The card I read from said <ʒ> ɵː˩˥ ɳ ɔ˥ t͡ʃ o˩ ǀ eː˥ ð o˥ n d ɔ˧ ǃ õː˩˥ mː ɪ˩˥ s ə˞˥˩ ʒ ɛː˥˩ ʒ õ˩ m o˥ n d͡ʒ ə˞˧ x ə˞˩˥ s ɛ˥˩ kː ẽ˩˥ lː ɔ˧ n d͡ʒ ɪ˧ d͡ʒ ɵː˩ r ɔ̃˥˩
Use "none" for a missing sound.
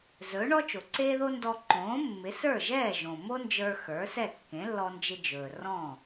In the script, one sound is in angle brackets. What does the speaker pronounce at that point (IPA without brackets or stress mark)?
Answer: z